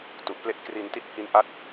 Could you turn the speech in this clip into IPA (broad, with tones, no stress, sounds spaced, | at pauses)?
t u˨˩ ʔ p l e˥˩ ʔ k r i˧ n t i˦˥ t̚ h i˦˥ n ʔ a˦˥ t̚